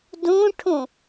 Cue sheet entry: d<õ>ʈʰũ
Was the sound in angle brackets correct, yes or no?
no